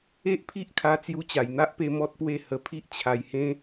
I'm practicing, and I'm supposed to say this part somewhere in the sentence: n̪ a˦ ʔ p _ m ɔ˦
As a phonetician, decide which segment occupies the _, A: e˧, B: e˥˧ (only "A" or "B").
A